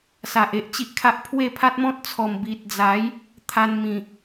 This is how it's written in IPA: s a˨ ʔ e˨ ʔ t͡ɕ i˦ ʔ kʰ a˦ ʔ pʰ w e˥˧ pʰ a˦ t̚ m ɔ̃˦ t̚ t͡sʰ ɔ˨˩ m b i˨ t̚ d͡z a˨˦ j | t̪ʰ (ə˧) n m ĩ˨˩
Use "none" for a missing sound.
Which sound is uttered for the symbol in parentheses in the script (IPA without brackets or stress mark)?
a˧